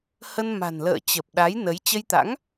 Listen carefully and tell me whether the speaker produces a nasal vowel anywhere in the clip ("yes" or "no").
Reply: no